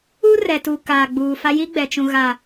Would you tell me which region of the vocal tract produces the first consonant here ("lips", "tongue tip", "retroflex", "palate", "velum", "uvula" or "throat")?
tongue tip